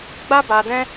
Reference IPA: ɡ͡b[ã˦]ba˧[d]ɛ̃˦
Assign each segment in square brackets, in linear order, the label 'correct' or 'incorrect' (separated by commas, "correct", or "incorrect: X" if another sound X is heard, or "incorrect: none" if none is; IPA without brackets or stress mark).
incorrect: a˦, correct